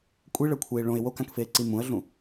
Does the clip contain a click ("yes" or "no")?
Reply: yes